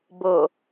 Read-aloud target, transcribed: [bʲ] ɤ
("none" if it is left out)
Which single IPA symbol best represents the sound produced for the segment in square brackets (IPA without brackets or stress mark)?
b